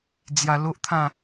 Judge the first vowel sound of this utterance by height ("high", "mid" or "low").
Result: low